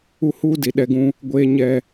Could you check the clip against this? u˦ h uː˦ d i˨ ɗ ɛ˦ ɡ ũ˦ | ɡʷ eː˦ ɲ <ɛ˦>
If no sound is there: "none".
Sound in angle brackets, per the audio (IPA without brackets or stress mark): ɛ˦